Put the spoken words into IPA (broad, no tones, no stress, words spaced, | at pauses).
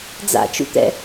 d͡za̰t͡ʃṵt̪ɛ̰